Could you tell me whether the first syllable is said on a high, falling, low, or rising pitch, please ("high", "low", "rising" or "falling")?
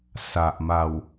low